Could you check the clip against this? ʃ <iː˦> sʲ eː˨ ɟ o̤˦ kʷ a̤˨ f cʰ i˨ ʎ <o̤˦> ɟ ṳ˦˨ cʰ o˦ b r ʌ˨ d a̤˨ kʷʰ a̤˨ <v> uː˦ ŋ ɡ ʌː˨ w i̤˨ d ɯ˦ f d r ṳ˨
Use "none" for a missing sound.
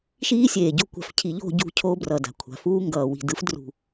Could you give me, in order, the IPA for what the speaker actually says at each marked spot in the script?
iː˦, o̤˦˨, f

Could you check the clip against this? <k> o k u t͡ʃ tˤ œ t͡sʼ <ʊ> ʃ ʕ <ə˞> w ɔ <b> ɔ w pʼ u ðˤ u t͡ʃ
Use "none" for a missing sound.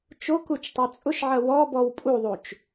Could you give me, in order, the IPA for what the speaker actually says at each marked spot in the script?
t͡ʃ, ʊ, ɐ, b

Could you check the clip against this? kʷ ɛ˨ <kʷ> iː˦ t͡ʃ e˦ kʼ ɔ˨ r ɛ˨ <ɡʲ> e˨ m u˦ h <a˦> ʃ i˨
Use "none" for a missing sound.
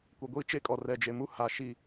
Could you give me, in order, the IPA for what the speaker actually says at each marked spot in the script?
ɡʷ, d͡ʒ, a˨

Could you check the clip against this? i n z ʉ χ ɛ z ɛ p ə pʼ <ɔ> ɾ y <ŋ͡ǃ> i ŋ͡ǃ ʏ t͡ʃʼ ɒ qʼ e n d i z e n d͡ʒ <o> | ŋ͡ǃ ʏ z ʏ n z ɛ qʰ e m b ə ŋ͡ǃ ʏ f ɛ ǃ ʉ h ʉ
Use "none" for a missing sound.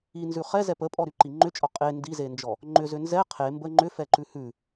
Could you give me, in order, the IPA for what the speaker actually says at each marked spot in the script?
ɔ, ǃ, ɔ

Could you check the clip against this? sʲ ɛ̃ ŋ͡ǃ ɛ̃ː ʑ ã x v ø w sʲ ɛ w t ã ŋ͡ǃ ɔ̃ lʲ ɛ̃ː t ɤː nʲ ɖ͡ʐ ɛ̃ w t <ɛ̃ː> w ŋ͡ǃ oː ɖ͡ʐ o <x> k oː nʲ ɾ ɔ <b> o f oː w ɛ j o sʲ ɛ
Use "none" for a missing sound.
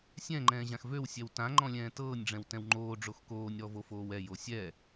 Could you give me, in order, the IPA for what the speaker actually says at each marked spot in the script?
ɛ̃, x, v

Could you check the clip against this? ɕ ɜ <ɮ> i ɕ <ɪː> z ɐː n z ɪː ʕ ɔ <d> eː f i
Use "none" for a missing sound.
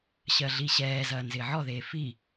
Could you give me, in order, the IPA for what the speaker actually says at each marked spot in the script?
ɮ, ɛː, ð

